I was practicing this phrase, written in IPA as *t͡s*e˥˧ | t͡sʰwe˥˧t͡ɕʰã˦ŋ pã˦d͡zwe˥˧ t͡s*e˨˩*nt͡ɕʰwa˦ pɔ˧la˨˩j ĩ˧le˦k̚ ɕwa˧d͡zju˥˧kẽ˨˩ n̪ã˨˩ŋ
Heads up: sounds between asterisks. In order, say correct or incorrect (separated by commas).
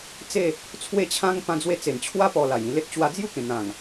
correct, correct